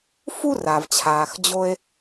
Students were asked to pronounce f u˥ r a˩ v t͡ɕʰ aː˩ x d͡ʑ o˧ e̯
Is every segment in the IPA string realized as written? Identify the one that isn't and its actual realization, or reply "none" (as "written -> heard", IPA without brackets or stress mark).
none